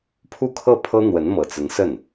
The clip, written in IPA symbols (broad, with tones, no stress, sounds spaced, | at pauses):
pʰ u˥˧ kʰ ɤ˥˩ pʰ ɤ˥ n̪ w ə˧˥ n m ɤ˨˩ t͡s ə˧˥ n s ə˥˩ n